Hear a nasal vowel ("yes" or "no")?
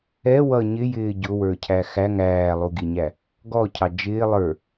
no